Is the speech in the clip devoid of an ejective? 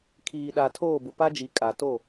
no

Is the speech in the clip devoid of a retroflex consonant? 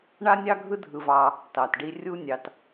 no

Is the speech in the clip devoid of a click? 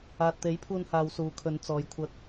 yes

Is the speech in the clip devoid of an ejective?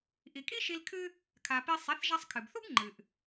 no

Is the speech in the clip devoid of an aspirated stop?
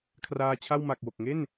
no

